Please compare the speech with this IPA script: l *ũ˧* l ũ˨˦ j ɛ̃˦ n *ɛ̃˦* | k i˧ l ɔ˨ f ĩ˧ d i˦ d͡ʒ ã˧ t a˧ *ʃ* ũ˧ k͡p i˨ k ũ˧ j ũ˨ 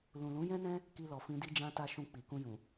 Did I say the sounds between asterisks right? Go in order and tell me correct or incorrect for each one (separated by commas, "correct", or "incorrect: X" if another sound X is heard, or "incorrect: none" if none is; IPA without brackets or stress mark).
incorrect: ũ˨, correct, correct